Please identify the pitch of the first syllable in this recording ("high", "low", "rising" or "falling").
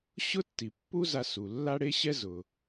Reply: high